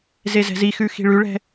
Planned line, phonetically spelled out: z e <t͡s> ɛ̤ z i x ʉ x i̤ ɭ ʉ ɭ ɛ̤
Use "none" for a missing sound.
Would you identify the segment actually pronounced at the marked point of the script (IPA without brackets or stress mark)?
z